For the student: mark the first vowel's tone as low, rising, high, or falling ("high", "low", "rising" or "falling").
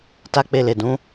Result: high